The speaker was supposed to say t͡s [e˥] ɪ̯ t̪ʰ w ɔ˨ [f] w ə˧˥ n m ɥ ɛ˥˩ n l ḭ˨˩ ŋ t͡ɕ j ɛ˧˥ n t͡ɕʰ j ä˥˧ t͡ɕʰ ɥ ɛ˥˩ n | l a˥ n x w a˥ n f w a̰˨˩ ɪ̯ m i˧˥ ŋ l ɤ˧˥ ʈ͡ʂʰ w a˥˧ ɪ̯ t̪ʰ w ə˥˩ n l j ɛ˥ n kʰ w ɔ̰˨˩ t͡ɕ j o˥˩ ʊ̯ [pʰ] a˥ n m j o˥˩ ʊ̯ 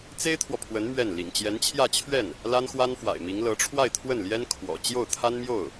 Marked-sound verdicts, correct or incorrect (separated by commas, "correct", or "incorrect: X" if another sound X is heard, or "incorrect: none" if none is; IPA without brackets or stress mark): correct, incorrect: pʰ, incorrect: t̪ʰ